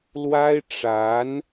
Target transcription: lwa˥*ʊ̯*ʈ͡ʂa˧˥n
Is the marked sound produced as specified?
no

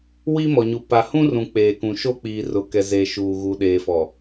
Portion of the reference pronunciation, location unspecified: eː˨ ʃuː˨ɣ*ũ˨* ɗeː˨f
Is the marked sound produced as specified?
no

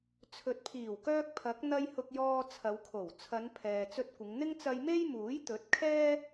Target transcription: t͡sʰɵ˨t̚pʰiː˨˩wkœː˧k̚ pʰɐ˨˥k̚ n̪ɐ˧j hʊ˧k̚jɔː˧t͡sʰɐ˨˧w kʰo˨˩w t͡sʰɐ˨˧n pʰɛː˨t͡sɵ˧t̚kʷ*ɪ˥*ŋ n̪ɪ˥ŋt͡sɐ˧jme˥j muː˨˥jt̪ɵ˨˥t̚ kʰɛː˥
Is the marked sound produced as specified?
no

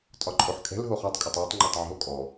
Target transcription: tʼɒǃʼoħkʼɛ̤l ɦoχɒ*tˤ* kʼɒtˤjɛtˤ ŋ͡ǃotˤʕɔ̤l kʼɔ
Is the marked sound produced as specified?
yes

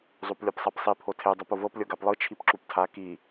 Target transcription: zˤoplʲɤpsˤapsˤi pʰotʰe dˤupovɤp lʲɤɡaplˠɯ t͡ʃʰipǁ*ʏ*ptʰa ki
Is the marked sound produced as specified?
no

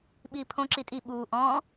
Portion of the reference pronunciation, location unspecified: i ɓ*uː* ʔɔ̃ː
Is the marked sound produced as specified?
yes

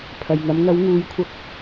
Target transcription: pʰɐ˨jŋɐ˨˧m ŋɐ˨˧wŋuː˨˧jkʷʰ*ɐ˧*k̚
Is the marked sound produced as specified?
yes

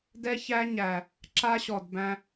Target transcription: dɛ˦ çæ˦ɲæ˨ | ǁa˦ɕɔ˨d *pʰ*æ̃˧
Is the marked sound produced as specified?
no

